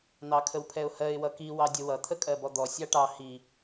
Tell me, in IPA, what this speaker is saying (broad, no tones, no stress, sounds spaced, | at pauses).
n̪ ɑ kʰ ə w pʰ ɛ ʊ̯ h ɜ ɪ̯ w ʌ k i w ɑ dʲ ə w ʌ t̪ʰ ə kʼ ɜ b ɔ d̪ ɔ sʲ ɑ ʈ ɑ h i